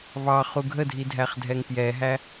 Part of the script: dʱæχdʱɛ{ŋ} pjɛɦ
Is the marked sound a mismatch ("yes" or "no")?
no